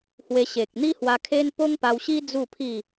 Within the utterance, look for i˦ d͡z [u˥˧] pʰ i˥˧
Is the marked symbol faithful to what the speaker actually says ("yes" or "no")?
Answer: yes